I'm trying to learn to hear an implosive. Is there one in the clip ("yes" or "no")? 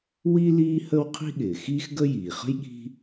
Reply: yes